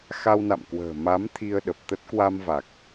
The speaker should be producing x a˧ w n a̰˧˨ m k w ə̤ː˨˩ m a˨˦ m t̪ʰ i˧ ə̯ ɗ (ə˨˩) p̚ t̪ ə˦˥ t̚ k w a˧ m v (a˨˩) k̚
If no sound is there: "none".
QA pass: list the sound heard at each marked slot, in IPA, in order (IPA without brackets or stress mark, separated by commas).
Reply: ə˨˩, a˨˩